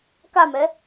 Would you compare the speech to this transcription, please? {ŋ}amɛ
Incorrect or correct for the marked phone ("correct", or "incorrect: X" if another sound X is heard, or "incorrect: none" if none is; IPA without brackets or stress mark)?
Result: incorrect: k